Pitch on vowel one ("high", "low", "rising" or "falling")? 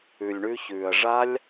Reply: low